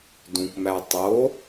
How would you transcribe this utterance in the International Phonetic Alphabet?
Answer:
dũkmætˤo

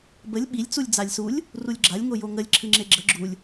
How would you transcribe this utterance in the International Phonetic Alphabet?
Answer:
bəlʲ ɓilʲ t͡sulʲd͡zalʲsulʲ | rulʲɡ͡ǁalʲŋo joŋəlʲ ǁʰɨŋ͡ǁeɡ͡ǁə ɡ͡ǁulʲ

